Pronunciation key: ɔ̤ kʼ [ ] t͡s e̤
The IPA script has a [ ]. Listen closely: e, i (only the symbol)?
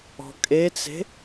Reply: e